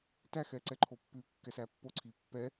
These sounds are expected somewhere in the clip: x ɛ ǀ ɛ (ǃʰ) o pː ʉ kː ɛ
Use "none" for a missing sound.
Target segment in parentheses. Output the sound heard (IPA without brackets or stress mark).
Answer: ǃʰ